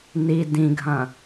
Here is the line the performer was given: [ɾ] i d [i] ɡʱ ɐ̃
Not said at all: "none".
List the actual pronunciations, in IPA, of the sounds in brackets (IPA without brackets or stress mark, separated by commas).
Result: n, ĩ